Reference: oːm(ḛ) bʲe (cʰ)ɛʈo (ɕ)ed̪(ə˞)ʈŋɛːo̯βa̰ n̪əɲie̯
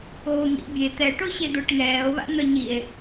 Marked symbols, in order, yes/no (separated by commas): no, no, yes, yes